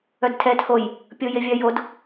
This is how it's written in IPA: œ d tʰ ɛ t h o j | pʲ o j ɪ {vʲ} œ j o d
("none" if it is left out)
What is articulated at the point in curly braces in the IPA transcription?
vʲ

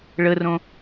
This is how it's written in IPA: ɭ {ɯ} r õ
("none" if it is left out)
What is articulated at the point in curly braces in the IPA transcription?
ə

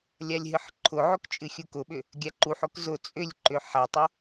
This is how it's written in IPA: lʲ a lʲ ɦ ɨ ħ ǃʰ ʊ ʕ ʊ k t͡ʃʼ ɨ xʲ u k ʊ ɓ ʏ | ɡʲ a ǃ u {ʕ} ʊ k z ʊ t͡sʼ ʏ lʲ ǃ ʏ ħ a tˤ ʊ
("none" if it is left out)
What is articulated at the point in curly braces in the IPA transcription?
ħ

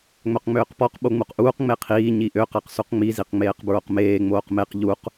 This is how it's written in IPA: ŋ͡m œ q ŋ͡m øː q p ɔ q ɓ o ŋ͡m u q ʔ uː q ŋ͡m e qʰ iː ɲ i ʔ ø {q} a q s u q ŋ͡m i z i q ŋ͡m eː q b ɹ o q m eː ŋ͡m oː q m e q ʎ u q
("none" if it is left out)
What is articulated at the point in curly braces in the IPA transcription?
q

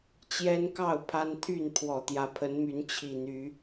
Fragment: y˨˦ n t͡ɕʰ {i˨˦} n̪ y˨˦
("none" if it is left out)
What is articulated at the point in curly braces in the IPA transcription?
i˨˩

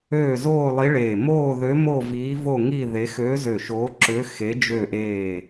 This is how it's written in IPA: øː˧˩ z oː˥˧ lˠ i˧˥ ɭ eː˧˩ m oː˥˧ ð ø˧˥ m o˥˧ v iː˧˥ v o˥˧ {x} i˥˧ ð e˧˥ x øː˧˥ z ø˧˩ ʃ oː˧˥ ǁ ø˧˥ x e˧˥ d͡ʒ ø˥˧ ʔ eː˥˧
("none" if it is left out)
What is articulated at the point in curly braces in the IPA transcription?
ŋ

